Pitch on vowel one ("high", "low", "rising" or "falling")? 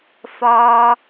low